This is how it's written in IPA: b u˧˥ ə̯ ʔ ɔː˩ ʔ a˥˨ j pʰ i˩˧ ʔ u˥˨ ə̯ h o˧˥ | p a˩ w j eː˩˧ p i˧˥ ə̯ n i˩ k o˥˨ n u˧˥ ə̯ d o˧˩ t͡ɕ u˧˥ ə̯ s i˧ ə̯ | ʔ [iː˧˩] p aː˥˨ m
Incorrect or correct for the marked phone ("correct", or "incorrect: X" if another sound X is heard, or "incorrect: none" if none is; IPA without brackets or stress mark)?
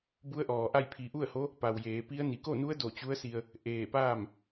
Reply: incorrect: eː˧˩